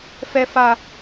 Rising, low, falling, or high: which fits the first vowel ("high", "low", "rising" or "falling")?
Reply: low